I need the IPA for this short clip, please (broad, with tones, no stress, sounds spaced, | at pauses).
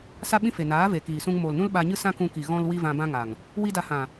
s a˦ ɓ ĩ˦ f e˨ n aː˨˦ v e˨ k iː˨ s ũ˧ ŋ m oː˨ l n ũ˦ l ɓ a˧ ɲ ɨ˦ s ã˦ k ũ˧ k i˨ ɣ ɔ̃˧ l w i˧ v ã˧ b ã˦ ŋ a˨ ŋ | w i˦ d a˧ h ã˨